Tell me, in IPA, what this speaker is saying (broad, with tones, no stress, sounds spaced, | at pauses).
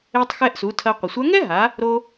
e˧ tˤ x ɛ˧ ʔ s u˩˧ tʰ ɐ˧ qʷ ɘ˩ sʷ a˧˥ ŋ ɛ˥ ɦ a˩˧ | ɾ o˧